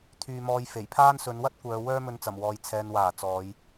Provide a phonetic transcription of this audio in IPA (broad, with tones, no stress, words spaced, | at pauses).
t̪ʰyː˧mɔː˧j fe˨˩jpʰaː˥n sɵ˨˧nwɐ˥t̚ kʷœː˨˧ wœː˥mɵ˧nt͡sɐ˨˩mwɔː˨j t͡sʰɛː˨nwaː˨˩ t͡sɔː˨˧j